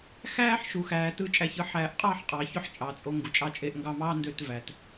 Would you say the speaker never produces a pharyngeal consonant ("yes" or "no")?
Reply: no